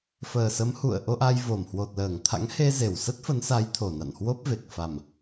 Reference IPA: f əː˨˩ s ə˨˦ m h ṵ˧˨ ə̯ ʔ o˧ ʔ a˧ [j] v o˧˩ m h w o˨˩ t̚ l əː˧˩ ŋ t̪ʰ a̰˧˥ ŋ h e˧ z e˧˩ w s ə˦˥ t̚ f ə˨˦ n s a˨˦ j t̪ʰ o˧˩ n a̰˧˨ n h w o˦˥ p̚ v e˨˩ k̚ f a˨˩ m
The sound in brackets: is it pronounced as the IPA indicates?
yes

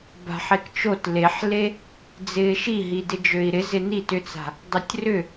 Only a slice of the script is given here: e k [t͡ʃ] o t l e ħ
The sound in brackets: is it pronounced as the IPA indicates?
yes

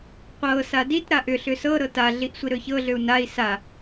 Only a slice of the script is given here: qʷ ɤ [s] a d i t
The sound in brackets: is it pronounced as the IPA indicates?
yes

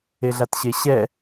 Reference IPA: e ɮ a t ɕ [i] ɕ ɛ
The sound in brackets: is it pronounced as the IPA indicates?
no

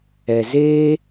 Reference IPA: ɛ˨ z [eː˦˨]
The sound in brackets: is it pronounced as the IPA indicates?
no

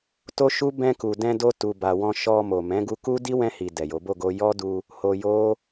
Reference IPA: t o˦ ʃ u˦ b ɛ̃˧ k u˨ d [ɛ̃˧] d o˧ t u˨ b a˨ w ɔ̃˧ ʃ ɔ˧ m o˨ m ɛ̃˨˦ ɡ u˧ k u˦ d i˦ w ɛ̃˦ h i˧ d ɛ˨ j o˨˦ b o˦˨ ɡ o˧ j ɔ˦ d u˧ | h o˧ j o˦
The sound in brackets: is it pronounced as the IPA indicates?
yes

